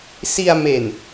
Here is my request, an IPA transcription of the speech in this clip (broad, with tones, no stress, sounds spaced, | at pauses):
s i˧ a̯ m e˨˩ n